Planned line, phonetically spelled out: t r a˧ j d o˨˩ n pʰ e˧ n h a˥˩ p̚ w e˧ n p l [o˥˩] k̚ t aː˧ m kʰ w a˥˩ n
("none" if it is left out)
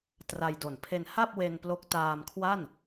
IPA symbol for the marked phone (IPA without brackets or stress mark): o˦˥